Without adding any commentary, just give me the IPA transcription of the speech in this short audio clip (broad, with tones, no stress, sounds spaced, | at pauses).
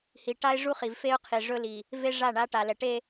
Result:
h i˨ ʈ a˦ ɪ̯ ʐ u˦ χ i˨ v f e˦ ʊ̯ qʰ i˨ ʐ ɵ˦ l i˨ | v e˦ ʐ a˦˨ ɳ a˦ ʈ a˨ l ɛ˨ ʈ e˦